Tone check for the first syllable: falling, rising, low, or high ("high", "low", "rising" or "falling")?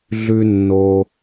high